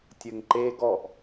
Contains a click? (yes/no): yes